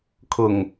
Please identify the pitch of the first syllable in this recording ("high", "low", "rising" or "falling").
low